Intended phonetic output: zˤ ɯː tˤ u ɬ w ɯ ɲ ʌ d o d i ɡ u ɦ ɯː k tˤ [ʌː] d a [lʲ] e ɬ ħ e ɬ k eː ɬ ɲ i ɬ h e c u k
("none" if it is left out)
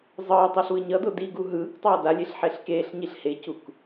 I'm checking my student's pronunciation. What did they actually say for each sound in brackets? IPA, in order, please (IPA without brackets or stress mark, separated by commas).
ʌː, lʲ